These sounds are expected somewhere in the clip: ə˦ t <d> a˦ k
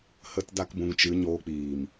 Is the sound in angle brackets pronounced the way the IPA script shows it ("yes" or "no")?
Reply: yes